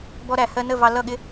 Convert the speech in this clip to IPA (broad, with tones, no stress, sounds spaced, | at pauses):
b ɔ˧ ɾ æ˨ h ɜ˧ n ə˦˨ v ɑ˧ l ʌ˦˨ ɠ ɪ˦